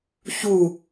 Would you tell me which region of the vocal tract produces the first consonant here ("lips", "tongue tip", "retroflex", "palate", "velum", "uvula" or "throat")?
palate